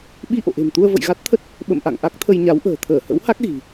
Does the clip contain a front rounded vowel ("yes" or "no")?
no